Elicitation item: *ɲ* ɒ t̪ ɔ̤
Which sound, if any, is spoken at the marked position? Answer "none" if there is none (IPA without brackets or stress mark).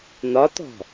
n̪